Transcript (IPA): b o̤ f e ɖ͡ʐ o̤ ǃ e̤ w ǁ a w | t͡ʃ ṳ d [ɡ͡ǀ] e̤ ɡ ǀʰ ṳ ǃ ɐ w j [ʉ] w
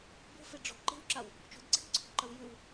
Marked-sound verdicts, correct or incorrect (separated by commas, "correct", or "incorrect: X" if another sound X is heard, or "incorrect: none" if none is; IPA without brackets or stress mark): correct, correct